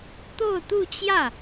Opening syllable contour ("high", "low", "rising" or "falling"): falling